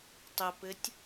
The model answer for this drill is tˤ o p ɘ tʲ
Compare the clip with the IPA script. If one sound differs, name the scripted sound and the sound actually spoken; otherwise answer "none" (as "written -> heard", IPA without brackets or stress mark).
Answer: none